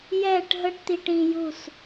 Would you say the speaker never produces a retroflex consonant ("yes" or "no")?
no